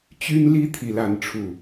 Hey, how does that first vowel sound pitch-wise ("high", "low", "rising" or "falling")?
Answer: high